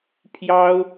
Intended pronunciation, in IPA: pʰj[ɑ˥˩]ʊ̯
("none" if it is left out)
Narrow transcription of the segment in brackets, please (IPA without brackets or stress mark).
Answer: ɑ˥